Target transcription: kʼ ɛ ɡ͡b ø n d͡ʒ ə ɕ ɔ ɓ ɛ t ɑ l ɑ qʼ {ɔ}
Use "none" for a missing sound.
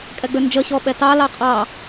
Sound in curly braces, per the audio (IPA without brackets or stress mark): ɑ